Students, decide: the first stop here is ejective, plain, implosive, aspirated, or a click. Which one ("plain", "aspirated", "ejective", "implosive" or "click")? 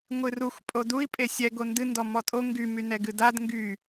ejective